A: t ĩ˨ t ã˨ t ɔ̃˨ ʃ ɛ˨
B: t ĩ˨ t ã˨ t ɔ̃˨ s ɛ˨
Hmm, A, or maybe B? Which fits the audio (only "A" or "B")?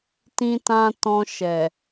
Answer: A